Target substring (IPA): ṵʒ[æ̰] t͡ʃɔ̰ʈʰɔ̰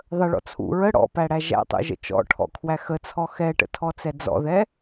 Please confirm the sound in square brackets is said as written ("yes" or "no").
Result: no